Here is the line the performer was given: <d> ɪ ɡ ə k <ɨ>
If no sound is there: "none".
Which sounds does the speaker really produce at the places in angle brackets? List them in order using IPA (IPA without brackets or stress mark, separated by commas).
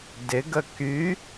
d, y